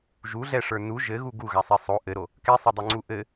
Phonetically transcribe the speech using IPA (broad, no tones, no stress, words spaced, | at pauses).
ʒuɮɛʂə˞ nu ʒɘɣu ɡuɣasˤe sˤo ʔɘɾo | kɛsˤɘdˤoŋ͡ǀu ʔɘ